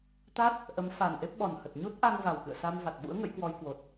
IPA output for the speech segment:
t̪ a˦˥ t̚ | ʔ ə˨˦ m f a˨˩ n ʔ e˦˥ p̚ ɓ ɔ˨˩ n h ə˨˩ t̚ ɲ u˦˥ t̚ ʔ a˧ ŋ v a˨˩ w k ɨ̰˧˨ ə̯ s a˧ m v a˨˩ t̚ ɓ ṵ˧˥ ə̯ ŋ ə̰˧˥ j k w ɔ˧ j k w o˨˩ t̚

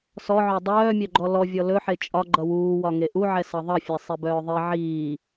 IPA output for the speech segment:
s ɔ ʕ œ dˤ œː mʲ œ ɡ͡ǃ ɔ l ɔ vʲ ɔ l ɵ ħ e t͡ʃʼ ɒ ɡ͡ǃ ʌ w uː w ɒ ŋ e ʔ u ʕ ɛ s ʌ ðˤ ʌ fʲ ɛ sˤ i b œː ðˤ i ʕ iː

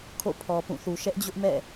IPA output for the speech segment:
kʰ o̰˦˨ pʰ ɔ˨ p ũ˦˨ θ u˨ ʃ ɛ˦ ʔ d͡ʑ ʊ˦ ʔ m ɛ̰˦˨

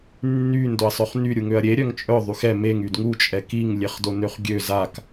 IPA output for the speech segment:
nː y n d o ɐ̯ sˤ œ χ n y ɾʲ u ŋ ø ɐ̯ ɾʲ e ɾʲ œ ŋ t͡ʃʼ œ ðˤ y x ɛ m e ŋ y d ŋ u t͡ʃʼ ɛ k i ŋ lʲ e χ d o n ø χ ɡʲ ø z a k

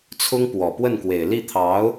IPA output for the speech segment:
t͡sʰ ʊ˥ ŋ p w ɔ˨˩ p w ə˥˩ n k w e˨˩ ɪ̯ l i˥˩ t̪ʰ ɑ˧˥ ʊ̯

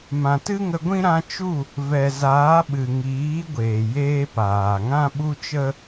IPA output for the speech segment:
m ã˨ t ɨ˦ ŋ ə˧ ɡʷ ĩ˦ ɾ ã˧ t͡ʃ u˦˨ | v ɛ˨ z aː˨˦ ɓ ɨ˨ ŋ iː˨˦ ɡʷ eː˨ j eː˦ p aː˨ ŋ ã˦ ɓ u˦ t͡ʃ ə˦

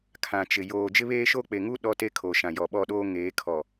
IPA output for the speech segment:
kʰ ã˨ t͡ʃ ɪ˨ j oː˨ d͡ʒ ɪ˦ β eː˦ ʃ o˦ k͡p e˨ ŋ u˦ ɗ ɔ˦ t e˦ kʰ o˨ ʃ ã˨ j ɔ˨ ɓ ɔ˦˨ ɗ oː˦ ŋ eː˨˦ kʰ ɔ˨

